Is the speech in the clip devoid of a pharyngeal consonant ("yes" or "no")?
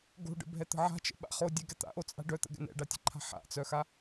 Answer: no